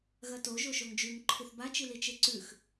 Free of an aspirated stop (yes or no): no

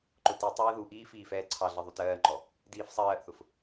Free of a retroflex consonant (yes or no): yes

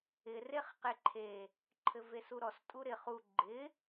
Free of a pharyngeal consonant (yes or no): yes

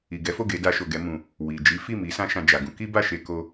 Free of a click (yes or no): yes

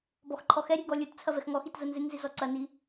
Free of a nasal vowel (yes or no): yes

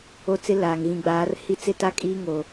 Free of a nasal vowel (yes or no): no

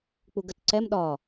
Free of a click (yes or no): no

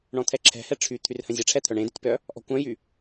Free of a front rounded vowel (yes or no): no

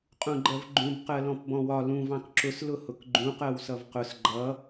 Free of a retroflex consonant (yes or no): yes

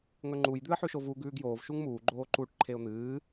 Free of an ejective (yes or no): yes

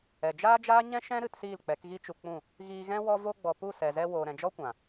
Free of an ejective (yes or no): yes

